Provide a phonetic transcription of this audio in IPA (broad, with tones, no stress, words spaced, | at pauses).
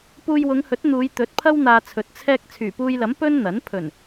puː˧jwʊ˨˧ŋhɵ˨˥t̚ n̪uː˨˧jt̪ɵ˨˥t̚pʰɐ˥w n̪aː˧t͡sʰɵ˨t̚ t͡sʰɛː˧k̚ t͡sʰyː˨˩puː˧jlɐ˨˥m pɵ˥n n̪ɐ˨˥n pʰɵ˨˩n